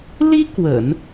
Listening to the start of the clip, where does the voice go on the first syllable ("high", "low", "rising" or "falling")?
high